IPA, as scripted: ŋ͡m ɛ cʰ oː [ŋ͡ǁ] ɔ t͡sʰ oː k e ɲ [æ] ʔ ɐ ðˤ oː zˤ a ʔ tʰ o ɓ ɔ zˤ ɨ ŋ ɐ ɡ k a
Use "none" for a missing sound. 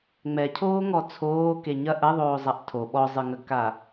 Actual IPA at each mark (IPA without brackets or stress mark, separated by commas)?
ŋ, ɐ